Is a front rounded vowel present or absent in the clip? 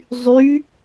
present